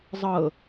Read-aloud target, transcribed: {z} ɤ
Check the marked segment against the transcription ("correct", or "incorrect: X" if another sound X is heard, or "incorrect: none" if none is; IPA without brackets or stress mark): incorrect: zˤ